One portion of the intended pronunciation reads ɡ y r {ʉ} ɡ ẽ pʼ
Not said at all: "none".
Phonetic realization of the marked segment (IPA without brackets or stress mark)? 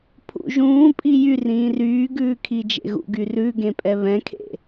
ʉ